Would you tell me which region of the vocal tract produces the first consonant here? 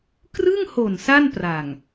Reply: velum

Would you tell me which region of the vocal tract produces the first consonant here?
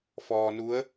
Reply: lips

